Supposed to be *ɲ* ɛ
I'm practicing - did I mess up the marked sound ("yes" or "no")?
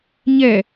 no